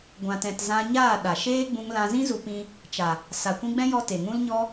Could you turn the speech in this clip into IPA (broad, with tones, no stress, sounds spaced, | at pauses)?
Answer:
ɡʷ ã˨ t ɛ̃˨ t z ã˧ ɲ aː˦˨ ɗ a˨ ʃ eː˦ ɡ͡b ũ˧ ŋ l ã˧ z ĩ˦ z u˧ p ĩ˧ | t͡ʃ a˨ | s a˨ kʷ ĩ˧ ɡ͡b ɛ̃˦ j ɔ˧ t e˨ ŋ ũ˧ l ɲ ɔ˧